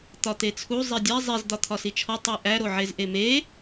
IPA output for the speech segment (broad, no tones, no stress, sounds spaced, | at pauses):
t̪ ɒ t̪ e t͡sʰ u zˤ i dʲ æ zˤ i z d̪ ɒ t̪ʰ ɒ s i t͡ʃʰ ɒ tˤ e ʔ æ ɾ o ʕ e z ʔ e m e